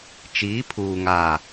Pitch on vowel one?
rising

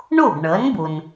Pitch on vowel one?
falling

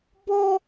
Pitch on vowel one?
high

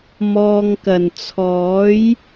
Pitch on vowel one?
low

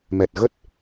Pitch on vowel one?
low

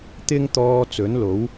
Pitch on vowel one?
high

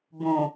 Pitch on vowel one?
low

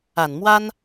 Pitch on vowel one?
low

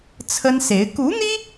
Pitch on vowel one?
high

